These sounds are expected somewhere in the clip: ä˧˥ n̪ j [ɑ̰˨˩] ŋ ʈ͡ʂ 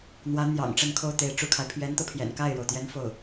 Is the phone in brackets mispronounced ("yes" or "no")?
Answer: no